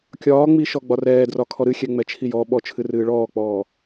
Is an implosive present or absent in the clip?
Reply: present